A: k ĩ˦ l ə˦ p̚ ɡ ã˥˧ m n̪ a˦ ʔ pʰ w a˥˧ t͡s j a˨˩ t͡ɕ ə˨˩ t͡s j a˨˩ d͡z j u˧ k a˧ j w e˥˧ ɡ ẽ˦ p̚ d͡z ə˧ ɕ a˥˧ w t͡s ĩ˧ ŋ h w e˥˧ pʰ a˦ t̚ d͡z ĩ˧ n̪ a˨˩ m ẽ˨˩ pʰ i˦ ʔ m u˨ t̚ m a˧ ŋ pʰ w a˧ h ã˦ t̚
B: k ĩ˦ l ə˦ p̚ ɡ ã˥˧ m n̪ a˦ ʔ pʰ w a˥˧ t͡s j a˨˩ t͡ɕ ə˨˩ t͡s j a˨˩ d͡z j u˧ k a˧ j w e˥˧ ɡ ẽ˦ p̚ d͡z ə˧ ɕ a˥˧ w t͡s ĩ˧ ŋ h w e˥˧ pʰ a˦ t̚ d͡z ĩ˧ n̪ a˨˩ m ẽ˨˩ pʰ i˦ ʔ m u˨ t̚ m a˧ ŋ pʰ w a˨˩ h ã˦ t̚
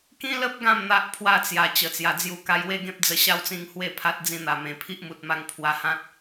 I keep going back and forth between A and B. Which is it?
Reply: A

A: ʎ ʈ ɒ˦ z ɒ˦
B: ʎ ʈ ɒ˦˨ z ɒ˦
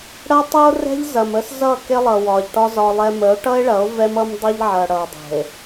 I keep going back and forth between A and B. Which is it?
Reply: A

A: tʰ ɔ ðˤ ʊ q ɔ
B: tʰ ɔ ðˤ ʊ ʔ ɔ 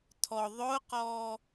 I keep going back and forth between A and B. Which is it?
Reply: A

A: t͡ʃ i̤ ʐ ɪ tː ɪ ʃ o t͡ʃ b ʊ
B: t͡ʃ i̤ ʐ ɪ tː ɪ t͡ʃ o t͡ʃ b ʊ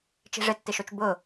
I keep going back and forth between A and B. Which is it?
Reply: A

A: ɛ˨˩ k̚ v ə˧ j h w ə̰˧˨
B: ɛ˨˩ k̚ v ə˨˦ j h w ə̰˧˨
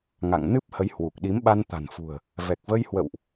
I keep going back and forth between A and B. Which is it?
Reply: A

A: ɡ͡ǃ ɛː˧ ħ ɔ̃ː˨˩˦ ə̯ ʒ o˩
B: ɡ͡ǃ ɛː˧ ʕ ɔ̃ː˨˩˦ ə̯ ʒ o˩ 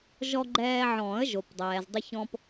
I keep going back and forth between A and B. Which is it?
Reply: B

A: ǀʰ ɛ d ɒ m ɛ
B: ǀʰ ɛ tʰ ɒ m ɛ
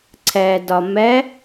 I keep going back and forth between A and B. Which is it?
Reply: A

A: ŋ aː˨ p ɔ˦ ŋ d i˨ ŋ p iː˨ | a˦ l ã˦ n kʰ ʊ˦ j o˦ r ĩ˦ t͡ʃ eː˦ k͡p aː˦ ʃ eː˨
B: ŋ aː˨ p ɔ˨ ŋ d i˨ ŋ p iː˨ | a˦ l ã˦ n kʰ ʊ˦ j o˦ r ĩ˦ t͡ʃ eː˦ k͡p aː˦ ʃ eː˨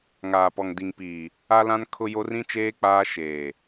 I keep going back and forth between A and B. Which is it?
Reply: B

